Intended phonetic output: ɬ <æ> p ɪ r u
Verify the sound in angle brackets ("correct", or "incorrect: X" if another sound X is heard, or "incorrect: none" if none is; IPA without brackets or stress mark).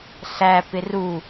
correct